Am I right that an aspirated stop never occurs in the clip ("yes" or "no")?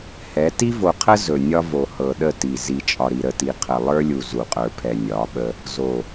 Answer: no